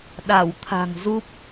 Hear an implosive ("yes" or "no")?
yes